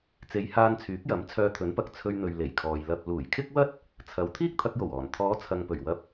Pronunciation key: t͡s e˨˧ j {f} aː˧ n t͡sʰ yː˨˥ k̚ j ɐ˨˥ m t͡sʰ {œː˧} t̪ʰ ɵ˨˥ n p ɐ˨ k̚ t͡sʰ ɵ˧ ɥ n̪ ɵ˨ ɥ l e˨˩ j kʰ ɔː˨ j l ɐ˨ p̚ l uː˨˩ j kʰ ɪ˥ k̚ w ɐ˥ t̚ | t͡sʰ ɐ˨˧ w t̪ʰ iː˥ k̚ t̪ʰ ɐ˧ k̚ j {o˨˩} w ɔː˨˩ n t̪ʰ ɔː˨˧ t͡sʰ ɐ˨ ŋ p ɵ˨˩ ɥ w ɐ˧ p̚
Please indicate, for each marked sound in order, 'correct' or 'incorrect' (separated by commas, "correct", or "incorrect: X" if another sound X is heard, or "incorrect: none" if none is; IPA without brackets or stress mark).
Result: incorrect: h, correct, correct